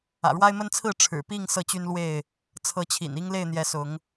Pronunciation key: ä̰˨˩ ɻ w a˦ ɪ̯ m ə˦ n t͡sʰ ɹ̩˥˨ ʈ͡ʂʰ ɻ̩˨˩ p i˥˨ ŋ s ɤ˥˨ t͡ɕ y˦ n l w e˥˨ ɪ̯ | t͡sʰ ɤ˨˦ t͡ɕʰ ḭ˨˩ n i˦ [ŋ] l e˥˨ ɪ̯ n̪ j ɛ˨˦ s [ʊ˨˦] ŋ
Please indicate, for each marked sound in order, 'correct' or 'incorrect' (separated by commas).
correct, correct